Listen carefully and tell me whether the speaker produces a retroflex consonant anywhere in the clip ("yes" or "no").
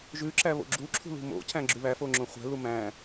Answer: no